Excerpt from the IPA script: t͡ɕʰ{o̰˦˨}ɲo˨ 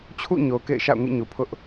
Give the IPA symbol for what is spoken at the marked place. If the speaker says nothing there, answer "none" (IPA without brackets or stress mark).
ṵ˦˨